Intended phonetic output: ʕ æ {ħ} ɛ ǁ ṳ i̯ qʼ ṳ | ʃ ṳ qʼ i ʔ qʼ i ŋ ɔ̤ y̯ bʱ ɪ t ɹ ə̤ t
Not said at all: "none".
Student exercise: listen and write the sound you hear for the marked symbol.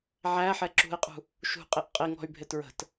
ħ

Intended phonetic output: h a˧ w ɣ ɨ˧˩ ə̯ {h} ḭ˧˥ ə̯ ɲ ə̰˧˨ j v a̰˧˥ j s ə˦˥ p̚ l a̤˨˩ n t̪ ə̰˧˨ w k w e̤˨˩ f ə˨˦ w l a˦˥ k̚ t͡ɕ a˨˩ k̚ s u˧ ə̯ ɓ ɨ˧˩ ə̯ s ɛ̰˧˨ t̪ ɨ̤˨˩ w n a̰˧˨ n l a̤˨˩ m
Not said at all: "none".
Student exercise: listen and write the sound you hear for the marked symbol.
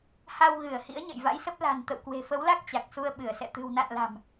h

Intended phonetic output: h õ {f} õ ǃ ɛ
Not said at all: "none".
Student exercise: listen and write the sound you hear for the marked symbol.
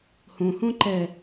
h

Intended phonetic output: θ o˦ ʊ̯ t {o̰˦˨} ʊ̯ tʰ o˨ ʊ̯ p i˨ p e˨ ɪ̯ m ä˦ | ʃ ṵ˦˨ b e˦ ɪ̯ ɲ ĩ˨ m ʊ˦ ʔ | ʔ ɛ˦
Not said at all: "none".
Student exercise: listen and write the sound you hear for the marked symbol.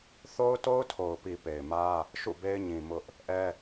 o˦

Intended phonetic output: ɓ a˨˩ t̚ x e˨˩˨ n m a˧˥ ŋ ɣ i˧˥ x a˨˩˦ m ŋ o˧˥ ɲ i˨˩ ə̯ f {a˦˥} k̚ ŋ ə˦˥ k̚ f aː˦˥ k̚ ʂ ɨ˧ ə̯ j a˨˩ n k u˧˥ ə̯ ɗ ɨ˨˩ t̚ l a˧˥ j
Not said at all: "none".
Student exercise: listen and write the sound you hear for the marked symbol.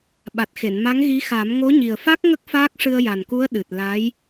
a˦˥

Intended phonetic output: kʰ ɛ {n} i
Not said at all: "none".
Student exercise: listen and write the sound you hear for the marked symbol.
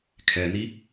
n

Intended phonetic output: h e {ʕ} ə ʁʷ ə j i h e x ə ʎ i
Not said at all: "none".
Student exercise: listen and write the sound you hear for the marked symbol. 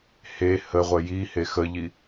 h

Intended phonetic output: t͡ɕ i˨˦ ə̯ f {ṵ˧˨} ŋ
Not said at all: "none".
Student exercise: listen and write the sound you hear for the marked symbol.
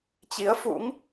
ṵ˧˥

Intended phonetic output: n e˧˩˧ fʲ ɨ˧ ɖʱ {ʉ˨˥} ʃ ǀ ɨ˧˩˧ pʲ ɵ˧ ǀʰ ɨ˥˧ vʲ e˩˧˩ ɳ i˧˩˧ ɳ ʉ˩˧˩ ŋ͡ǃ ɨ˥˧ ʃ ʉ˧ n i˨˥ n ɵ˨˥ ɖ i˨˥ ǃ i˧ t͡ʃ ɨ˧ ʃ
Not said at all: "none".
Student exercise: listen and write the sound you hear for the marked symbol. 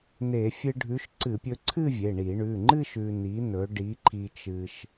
ʉ˨˥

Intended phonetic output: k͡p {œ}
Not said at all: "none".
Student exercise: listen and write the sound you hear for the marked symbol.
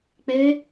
ɛ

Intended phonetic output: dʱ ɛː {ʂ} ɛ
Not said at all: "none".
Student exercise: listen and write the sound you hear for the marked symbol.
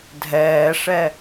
ʂ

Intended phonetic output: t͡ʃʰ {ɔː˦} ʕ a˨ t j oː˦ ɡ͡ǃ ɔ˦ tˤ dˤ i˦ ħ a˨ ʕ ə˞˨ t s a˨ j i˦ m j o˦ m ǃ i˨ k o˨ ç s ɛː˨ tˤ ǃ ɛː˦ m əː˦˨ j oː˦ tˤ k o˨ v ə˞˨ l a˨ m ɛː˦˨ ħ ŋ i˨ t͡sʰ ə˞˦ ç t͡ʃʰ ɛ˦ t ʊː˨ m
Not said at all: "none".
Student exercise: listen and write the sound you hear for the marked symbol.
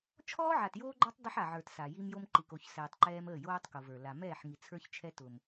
ɔː˦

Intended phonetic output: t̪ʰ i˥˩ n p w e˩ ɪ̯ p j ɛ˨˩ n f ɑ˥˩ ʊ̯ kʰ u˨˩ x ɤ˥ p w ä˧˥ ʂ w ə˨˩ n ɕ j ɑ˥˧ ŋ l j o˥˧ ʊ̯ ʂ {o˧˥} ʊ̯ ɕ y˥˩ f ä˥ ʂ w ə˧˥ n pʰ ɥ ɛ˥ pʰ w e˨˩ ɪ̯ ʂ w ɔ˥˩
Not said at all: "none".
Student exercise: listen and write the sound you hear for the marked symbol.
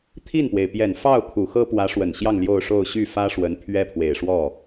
o˥˧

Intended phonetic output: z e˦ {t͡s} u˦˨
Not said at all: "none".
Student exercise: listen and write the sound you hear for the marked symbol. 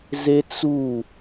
t͡s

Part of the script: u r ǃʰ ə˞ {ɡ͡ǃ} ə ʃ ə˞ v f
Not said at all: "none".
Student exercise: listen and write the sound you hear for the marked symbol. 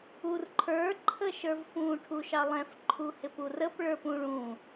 ǃʰ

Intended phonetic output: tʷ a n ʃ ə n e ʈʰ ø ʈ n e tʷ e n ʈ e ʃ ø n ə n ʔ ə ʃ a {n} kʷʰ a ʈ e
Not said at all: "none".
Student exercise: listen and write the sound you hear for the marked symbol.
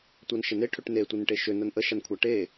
n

